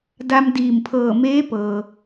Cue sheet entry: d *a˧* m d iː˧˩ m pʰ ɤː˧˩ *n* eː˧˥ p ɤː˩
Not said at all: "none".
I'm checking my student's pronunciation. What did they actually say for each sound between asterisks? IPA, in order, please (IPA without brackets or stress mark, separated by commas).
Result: a˧, m